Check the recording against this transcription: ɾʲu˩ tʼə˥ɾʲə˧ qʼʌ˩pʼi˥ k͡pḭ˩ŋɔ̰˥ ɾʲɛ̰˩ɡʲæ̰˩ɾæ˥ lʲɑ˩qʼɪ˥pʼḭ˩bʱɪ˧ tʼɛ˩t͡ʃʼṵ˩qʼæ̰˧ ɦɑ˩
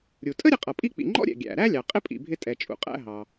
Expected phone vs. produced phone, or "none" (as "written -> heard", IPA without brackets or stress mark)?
ŋ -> ŋ͡ǃ